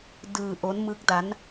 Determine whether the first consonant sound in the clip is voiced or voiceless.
voiced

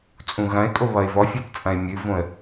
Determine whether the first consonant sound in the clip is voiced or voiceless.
voiceless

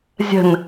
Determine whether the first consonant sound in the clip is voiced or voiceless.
voiced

